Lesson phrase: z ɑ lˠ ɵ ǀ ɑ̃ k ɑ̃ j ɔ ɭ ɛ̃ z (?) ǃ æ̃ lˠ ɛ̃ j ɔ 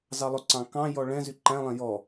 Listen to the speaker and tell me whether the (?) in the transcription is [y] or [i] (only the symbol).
y